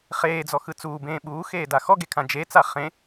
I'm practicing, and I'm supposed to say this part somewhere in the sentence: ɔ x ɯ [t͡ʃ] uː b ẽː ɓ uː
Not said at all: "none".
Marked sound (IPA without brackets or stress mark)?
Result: t͡s